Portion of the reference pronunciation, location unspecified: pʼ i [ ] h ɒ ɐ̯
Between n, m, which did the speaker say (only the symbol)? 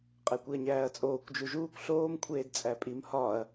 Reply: m